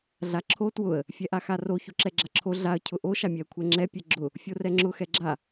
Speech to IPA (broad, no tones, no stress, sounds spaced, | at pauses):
ɮ a ǁʰ o t w ʊ ə̯ | fʲ ɛ ʔ a x a r o ç o ǁ ɛ ɡ͡ǁ a ǁʰ o ɮ a ə̯ cʰ ʊ ʔ o ʃ a mʲ ɛ ə̯ kʷʰ ɛ ŋ͡ǁ ɛ pʲ ɛ ɡ͡ǁ ʊ | fʲ o r ɛ ŋ͡ǁ ʊ x ɛ ɡ͡ǁ a